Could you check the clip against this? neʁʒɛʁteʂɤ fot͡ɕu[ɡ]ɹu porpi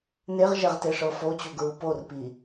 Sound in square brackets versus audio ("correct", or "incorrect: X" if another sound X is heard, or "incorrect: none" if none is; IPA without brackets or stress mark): correct